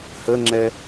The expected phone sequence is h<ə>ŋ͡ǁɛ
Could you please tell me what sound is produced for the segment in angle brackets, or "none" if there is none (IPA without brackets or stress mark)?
ə